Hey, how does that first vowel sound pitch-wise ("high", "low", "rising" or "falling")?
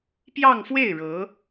falling